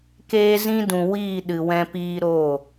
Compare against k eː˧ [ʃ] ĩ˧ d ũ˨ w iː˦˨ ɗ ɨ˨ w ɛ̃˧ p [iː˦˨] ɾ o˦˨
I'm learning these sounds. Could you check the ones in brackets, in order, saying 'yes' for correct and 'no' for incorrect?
no, no

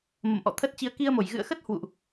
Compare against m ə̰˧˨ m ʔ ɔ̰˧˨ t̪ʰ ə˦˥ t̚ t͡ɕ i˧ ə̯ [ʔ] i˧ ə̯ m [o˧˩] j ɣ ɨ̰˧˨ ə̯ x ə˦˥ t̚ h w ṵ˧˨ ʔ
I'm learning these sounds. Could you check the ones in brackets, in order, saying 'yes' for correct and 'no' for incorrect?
no, yes

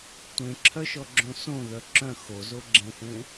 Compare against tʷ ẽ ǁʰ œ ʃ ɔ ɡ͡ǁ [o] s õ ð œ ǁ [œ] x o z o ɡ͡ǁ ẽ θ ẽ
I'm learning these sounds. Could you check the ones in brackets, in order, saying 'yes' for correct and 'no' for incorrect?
no, no

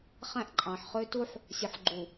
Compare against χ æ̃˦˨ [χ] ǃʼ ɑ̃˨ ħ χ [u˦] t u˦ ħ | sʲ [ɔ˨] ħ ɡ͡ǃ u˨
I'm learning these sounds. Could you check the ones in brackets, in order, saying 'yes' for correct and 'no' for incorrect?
no, no, no

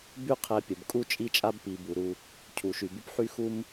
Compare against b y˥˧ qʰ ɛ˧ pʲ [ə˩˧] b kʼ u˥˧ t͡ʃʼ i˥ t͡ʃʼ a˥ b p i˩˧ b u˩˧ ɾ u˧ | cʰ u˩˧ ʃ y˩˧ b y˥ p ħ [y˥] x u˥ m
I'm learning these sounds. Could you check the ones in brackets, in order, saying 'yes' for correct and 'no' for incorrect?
yes, yes

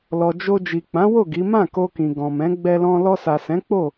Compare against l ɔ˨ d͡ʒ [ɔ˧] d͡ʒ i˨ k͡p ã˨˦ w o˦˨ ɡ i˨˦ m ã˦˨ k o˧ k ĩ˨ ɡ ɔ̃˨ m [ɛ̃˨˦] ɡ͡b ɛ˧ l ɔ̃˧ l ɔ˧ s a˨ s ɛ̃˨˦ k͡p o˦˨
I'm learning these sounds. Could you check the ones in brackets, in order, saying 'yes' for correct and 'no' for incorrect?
no, yes

